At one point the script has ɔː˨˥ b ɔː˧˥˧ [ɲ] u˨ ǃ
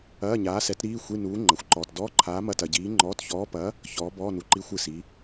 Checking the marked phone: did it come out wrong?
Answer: yes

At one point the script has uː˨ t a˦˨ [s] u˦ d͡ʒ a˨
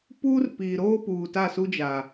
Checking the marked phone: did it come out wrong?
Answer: no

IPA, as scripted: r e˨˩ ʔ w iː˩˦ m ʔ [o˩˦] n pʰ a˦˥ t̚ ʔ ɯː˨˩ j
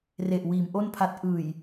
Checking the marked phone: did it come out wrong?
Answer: yes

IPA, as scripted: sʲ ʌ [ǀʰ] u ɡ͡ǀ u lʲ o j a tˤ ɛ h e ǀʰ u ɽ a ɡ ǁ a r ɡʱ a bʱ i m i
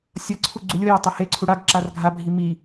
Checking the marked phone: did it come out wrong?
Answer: no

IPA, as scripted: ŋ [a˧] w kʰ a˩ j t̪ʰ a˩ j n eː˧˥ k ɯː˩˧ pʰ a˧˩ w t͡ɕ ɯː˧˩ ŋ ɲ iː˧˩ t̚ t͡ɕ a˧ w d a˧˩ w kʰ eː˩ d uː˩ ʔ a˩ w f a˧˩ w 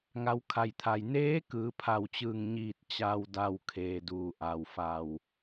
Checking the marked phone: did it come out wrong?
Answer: yes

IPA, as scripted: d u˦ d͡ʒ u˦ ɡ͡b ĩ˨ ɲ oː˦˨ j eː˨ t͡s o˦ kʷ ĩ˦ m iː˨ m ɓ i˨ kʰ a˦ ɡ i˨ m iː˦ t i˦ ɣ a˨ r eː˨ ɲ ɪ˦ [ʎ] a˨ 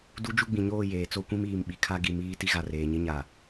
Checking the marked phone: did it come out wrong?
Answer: yes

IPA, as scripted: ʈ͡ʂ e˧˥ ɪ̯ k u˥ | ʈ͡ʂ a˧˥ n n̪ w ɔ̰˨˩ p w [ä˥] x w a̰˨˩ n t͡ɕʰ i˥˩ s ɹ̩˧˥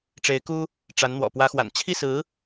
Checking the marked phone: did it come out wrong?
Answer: yes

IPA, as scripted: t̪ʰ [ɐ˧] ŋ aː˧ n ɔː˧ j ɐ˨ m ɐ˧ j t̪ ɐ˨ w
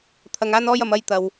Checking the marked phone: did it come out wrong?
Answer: yes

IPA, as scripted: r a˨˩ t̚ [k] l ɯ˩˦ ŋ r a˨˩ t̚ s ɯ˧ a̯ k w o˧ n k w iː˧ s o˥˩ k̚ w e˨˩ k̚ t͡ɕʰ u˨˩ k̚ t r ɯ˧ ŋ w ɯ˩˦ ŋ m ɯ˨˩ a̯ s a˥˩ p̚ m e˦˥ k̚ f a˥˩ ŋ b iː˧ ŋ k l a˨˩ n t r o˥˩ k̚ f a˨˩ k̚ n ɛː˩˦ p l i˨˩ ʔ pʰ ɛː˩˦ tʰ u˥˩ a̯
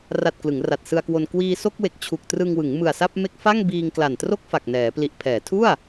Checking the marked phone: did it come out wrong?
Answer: no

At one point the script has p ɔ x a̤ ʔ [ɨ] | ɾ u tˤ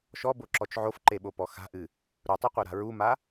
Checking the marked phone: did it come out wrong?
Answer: no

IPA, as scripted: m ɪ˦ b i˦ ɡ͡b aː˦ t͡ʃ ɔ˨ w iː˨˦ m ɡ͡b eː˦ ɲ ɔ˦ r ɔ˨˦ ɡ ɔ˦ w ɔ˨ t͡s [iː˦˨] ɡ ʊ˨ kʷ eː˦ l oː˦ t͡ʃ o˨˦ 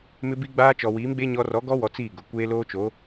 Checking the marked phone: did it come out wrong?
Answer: no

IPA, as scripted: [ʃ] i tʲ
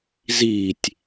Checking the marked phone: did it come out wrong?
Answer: yes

